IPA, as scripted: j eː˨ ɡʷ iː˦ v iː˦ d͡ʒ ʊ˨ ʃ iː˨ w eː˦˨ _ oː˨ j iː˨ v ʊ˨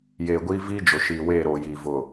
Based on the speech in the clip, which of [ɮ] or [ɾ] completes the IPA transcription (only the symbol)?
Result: ɾ